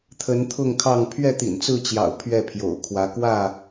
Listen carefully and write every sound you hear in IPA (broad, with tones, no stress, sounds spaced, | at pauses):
t̪ʰ ə˨˦ n t̪ʰ ʊ˥˨ ŋ kʰ ɑ˥˨ ŋ pʰ ɥ ɛ˥˨ t̪ ḭ˨˩ n t͡s ɹ̩˥˨ t͡ɕ j ɑ̰˨˩ ʊ̯ pʰ ɥ ɛ˥˨ pʰ j o̰˨˩ ʊ̯ kʰ w ä˨˦ k w ä˥˨